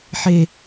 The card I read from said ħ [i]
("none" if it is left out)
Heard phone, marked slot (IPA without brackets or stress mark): e